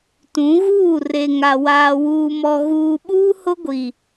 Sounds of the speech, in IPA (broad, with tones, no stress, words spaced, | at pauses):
tũ˨˦ɣuː˦˨ re˨ŋa˨ waː˨ wuː˨mɔ˨ ɣuː˨ɓuː˦hʊ˦ɡʷi˨